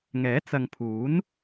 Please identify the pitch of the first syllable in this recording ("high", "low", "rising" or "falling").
rising